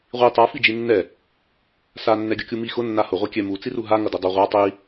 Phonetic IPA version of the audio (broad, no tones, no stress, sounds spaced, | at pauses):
ʁʷ i tˤ a f i d͡ʒ i nː ɛ | s a nː ɛ ɡʲ ʌ kʲ u m i x ʊ nː a h ʊ ʁʷ ɛ kʲ ɛ m u t͡s i r u ɦ a ŋ ʌ d ʊ dˤ ʌ ʁʷ a tˤ i